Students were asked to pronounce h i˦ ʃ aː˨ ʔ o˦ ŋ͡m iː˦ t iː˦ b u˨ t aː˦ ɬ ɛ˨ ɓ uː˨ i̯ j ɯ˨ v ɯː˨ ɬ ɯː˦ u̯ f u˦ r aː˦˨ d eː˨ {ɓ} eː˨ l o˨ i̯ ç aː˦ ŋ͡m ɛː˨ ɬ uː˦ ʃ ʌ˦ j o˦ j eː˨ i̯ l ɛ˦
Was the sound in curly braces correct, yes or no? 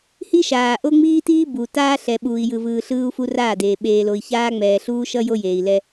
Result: yes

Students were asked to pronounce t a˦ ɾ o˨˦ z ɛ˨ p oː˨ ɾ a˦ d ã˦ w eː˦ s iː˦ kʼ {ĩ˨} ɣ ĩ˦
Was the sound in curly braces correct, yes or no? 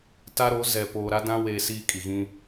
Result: no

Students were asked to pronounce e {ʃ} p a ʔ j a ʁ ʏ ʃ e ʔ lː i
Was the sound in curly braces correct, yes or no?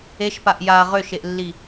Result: yes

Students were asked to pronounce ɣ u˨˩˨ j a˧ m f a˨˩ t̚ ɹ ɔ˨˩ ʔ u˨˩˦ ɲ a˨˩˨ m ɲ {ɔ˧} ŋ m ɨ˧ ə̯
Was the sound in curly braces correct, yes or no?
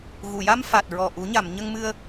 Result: no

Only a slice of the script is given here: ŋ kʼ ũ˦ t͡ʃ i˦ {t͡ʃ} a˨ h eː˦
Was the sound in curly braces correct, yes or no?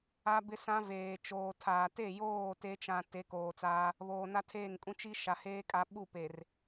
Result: no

